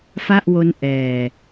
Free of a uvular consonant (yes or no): yes